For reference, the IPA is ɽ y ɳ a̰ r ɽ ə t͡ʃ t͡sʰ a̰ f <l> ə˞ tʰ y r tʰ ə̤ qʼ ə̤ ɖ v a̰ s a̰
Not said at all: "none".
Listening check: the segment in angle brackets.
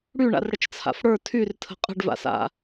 ɽ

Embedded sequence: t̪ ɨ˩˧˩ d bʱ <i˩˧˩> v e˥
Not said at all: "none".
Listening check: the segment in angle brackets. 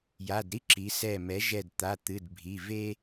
i˩˧˩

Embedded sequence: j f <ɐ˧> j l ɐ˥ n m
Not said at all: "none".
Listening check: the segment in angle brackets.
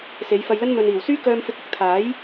ɐ˧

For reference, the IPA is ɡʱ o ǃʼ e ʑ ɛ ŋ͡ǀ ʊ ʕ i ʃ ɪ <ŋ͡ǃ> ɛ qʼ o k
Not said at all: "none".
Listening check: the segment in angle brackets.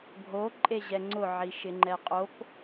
ŋ͡ǃ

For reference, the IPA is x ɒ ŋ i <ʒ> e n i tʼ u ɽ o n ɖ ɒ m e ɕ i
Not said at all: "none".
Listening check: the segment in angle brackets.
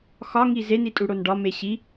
z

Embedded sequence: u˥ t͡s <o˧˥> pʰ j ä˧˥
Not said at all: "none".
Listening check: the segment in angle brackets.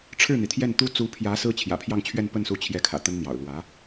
u˧˥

